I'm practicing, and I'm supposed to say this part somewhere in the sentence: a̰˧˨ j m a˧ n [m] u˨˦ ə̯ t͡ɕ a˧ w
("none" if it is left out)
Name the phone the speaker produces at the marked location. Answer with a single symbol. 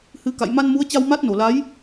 m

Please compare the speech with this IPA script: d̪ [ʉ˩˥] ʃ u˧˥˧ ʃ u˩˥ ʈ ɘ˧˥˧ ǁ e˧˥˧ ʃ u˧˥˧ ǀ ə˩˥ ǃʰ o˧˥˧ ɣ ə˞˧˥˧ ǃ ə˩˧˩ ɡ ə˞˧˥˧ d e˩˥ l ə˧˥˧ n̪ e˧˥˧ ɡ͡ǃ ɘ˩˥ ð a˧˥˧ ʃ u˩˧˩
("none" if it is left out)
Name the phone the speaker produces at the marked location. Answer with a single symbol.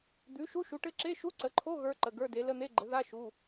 ʉ˩˥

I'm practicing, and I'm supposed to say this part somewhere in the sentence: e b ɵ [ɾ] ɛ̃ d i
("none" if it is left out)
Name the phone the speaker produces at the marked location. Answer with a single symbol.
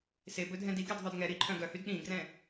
dʱ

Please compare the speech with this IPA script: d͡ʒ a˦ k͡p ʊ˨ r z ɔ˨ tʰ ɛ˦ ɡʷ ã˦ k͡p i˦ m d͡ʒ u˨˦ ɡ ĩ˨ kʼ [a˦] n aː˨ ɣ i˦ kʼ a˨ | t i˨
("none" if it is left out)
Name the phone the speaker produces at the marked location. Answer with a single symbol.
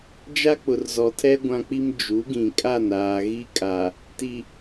a˦˨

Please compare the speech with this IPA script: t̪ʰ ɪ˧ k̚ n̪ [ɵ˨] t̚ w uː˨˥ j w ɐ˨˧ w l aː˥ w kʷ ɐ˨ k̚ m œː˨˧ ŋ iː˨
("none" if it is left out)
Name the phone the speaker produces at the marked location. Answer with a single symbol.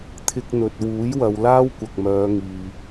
ɵ˨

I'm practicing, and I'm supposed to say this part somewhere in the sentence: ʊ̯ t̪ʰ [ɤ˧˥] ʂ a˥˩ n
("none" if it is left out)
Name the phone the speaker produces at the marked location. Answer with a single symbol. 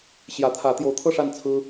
ɤ˥˧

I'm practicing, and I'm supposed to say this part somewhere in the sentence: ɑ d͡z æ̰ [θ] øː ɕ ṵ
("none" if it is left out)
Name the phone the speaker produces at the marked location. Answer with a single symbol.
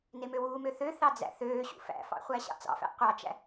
θ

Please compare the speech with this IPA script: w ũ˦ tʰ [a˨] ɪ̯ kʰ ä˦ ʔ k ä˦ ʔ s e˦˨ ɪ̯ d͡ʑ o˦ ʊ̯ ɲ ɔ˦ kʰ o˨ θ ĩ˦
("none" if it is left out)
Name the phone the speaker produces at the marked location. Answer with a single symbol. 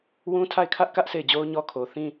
a˦˨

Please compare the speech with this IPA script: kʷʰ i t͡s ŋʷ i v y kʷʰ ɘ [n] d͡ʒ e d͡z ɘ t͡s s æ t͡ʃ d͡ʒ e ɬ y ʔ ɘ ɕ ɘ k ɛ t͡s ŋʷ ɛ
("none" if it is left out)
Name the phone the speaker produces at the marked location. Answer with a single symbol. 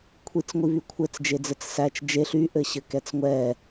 t͡s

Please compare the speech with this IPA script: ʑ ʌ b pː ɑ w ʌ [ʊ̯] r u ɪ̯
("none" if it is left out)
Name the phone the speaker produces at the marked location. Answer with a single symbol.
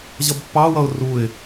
ʊ̯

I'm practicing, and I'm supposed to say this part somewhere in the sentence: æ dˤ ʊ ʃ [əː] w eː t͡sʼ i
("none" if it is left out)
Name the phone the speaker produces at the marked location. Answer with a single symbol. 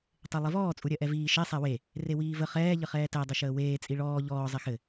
əː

